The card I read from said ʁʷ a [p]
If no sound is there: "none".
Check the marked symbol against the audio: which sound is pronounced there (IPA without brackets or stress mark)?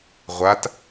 t